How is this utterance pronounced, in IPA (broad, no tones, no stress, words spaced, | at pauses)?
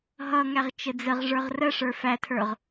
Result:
ɦʌŋæʁ t͡ʃəd͡zəʁ ʐə˞ʁrəʂə˞ fætʰə˞ʁ